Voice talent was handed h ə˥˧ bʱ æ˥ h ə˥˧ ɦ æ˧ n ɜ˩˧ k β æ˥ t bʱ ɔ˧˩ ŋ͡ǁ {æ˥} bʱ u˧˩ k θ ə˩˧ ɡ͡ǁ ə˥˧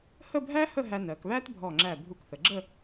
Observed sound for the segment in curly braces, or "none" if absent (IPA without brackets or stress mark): æ˧˩